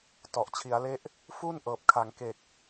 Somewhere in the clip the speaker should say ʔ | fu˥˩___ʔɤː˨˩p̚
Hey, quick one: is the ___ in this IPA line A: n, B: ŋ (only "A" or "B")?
A